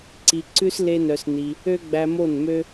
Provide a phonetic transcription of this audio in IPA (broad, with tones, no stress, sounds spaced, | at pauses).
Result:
ǀ i˧ ǀ ʉ˦ s l e˦ n œ˧ s n i˧ | ø˦ ɡ͡b æ˧ m o˦˨ n m ø˦